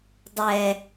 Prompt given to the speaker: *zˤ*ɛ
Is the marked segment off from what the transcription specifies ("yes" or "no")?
yes